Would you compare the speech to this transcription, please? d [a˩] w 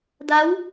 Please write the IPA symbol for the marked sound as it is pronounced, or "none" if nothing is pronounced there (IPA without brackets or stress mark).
a˧˥